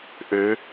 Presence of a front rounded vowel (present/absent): present